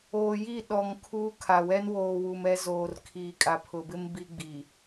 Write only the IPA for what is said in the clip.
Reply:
oː˨ji˦˨ ɗɔ˨ŋ kʰuː˦kʰa˨ wɛ˦n woː˨wu˨mɛ˦zoː˨r kʰiː˨kʼa˨pʰʊ˨bɪ˦m bi˦ɡ͡bi˨

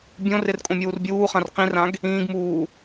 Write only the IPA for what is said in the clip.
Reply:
bʲõrɪr kʼõmʲuːrbʲuːχãr qĩrãɡ | ĩːɡmuː

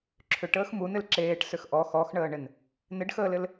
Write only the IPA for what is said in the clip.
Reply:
ǁʰʏʈəːx munɪl ǁeːʈsʏx ʔɔ xɔxɳəːɳɪn | nɪɖxəːlɪl

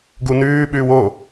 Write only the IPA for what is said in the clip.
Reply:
ɡunʉː ɓʉːwo

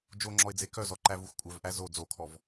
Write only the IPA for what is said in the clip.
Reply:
d͡ʒoŋ͡ǁɔɪ̯d͡ze kœzɔǃævux kʷʼœvʔæ zo d͡zokʰɔv

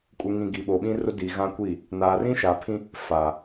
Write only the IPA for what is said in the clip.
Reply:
kʼu˨ŋĩ˨ ɡi˨ɓo˨ɓĩ˦ rʊ˦di˨ ɣã˦kʷi˦˨ | naː˨rĩ˦ʃa˨pʰĩ˦ | faː˨

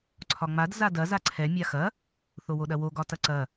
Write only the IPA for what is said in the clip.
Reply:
ǀʰɒŋ͡mad zadɐ zaǀʰɛ mʲaxɐ | θowoɗɐwo ɡɒtɐǀɐ

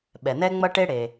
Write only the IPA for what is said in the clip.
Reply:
ɓɛ˩nɛ˦ŋ͡mʌ˦ʈe˦ ɽe˩

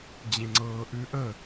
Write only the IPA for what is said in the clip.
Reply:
d͡ʑẽŋ͡ǀɤːʔʉʔə

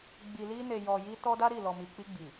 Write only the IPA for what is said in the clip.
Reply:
ɡ͡bi˨li˧ ne˨jɔ˨ ji˧ tɔ˦da˦ɾi˦˨ lɔ˨mi˨k͡pi˧ɡ͡bi˨

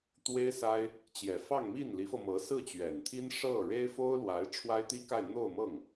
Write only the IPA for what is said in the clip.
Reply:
t̪we˥ɪ̯sa˥ɪ̯ | t͡ɕjɛ˨˩fɑ˥˧ŋmi˥˩n li˧˥fɤ˧mɤ˧˥ sɹ̩˥˩t͡ɕɥɛ˨˩nt̪ʰi˥n ʂɤ˥˩ ɻe˥ɪ̯fo˥ʊ̯lwa˧˥ɪ̯ ʈ͡ʂʰwa˥ɪ̯t̪i˥ka˥˧ɪ̯ n̪o˥˧ʊ̯mɤ˥˩ŋ

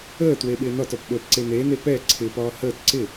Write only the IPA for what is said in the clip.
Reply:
əːtwe ɓɪːnɒtɒp ɓəːpǀenene pɛ ǀʰɪpɒː həːt ǀɪ

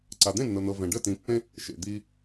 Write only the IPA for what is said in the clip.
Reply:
ǀa˨d̪ẽ˦˨nːɤ˨n̪ɤ˨ vɛ̃˨ ɖə˦˨tĩ˨˦ pːẽ˦ | ʃḛ˨ d̪iː˧

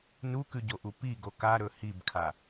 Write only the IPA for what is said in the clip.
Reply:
nukʉɟoʔu piɡo kaɾɵ hibkʰa

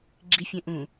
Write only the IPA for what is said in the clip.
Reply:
ɡ͡ǁifʲẽ ʔũ

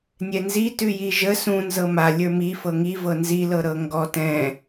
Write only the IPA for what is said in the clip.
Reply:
nʲɛnzitʉji ʒə sũnzɤ ma lʲə˞mi fɤŋivɤ nzilɤ ɾɤŋɡɔ tɛ̃

